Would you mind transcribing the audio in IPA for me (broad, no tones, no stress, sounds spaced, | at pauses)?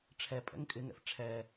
ʈ͡ʂʰ ɛ pʼ ɛ̰ ŋ kʼ ɪ ŋ ɛ̰ f ʈ͡ʂʰ ɛ